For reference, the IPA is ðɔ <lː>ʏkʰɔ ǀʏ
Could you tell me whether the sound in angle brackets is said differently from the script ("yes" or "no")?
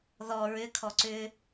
yes